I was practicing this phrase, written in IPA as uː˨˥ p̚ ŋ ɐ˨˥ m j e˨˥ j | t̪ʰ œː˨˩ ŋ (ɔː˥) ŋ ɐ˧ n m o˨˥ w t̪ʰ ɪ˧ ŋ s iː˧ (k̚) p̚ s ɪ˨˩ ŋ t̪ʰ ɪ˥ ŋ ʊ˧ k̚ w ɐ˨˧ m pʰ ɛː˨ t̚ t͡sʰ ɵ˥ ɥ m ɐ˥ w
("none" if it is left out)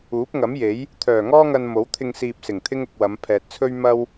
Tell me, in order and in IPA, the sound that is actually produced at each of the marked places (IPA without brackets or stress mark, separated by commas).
ɔː˥, none